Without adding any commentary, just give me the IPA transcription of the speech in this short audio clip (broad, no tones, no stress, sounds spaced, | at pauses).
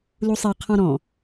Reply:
l u sˤ ɛ qʰ ɔ̃ ɾ ɔ̃